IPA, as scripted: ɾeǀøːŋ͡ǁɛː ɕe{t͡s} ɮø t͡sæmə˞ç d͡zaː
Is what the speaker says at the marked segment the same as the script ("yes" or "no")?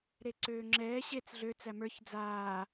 yes